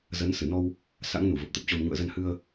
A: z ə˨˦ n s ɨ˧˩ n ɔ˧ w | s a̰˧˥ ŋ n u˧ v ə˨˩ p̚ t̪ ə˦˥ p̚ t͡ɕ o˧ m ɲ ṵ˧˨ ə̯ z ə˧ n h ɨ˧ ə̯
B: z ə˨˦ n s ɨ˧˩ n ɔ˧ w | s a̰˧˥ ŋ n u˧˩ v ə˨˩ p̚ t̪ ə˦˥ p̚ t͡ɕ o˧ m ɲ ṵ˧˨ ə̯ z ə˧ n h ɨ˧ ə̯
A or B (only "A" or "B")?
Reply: B